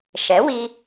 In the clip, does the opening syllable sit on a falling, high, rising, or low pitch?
rising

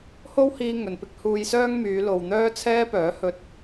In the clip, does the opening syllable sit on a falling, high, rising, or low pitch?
high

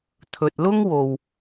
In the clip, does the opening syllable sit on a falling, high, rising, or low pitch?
low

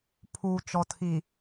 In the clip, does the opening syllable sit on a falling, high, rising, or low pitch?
low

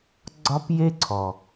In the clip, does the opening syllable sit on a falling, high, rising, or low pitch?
high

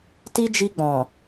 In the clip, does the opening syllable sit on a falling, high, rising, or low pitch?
high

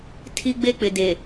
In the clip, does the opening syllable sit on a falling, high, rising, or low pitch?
high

